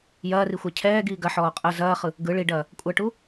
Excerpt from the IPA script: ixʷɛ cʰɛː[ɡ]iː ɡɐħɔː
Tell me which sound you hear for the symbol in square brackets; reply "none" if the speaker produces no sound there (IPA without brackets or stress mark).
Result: ɡ